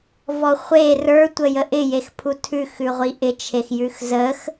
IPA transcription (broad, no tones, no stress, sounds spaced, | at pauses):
v ɔ χʷ e r ə˞ tʷ ə j ə ʔ ɪ j e x pʰ u tʰ ʉ x ʉ ʁʷ i ʔ ɪ t͡ʃʰ e x j ʉ x z ə x